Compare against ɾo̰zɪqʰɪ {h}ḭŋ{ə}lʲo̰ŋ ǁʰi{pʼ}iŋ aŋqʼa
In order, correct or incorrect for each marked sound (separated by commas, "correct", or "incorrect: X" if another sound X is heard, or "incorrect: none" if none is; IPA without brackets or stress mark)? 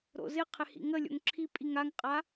correct, correct, correct